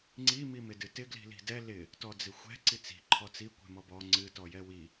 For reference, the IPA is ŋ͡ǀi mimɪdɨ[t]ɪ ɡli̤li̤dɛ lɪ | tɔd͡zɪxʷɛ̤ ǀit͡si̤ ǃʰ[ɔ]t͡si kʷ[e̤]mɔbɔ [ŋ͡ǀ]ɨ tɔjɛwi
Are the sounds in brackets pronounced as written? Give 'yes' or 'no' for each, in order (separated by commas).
yes, yes, no, yes